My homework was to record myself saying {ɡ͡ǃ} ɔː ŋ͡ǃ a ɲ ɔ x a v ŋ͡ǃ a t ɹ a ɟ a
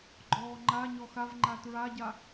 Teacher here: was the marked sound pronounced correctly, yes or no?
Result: yes